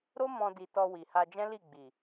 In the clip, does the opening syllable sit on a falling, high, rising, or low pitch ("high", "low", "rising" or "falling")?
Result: high